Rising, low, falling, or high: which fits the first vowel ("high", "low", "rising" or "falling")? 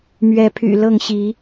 rising